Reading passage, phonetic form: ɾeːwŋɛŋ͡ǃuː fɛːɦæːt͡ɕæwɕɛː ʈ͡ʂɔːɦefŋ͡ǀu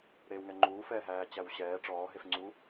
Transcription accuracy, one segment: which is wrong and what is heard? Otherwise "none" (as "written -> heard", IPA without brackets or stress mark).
none